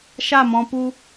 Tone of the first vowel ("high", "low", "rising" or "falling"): falling